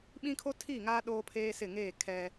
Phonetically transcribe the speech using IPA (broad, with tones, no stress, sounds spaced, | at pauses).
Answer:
ɓ ĩ˦ kʰ o˦ tʰ i˦˨ ŋ aː˦ ɗ oː˦ pʰ eː˦ s ɪ˦˨ ŋ eː˦˨ kʰ ɛ˦